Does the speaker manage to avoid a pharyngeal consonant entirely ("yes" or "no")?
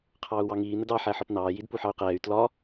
no